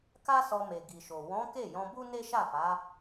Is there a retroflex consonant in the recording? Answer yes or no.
no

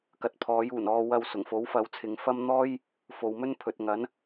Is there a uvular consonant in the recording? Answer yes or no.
no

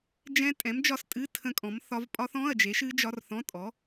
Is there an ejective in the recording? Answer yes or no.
yes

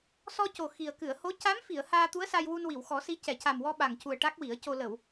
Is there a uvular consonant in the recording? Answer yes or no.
no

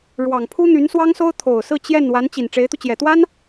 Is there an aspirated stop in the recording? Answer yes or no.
yes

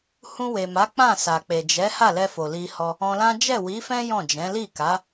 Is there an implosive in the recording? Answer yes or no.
no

